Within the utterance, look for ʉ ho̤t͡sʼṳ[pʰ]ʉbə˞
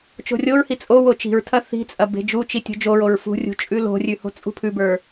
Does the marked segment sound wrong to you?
no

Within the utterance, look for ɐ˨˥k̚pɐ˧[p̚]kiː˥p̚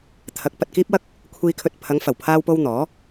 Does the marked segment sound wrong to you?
yes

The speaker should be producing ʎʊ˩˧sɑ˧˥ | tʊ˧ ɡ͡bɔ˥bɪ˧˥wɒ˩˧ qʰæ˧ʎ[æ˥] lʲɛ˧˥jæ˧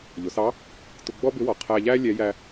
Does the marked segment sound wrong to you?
no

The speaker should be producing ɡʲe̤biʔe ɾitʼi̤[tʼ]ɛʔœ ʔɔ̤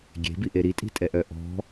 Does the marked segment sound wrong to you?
no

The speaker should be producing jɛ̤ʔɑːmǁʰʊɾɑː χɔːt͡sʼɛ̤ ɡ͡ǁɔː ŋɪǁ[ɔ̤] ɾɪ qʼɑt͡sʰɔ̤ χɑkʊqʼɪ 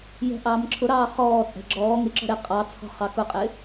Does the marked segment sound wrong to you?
no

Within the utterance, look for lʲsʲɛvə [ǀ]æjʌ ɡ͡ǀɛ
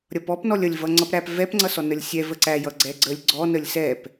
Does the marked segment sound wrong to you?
no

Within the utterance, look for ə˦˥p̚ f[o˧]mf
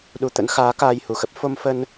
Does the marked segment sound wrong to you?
no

